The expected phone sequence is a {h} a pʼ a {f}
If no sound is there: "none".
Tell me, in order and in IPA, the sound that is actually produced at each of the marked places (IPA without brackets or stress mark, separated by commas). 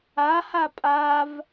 h, v